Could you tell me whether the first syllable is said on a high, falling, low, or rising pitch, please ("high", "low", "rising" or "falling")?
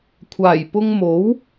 low